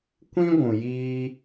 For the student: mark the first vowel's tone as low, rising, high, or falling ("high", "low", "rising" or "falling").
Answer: high